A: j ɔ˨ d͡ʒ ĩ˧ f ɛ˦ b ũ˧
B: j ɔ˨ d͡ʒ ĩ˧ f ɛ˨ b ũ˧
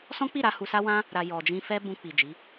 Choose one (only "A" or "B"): A